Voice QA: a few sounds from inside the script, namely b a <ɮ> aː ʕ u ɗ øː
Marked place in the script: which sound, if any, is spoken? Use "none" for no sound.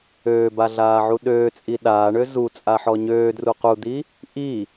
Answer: ɮ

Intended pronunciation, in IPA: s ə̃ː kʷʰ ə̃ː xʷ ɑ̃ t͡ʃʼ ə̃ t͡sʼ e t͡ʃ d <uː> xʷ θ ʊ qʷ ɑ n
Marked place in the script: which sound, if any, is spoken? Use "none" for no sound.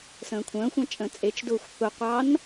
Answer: ʊː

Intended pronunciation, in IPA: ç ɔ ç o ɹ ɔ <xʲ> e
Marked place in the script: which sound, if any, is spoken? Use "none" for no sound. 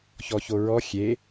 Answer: xʲ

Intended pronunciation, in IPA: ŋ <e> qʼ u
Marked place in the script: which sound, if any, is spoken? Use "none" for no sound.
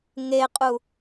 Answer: e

